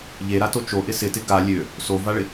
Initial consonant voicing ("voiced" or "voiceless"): voiced